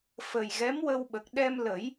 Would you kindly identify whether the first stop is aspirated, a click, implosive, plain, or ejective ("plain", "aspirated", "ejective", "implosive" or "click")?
implosive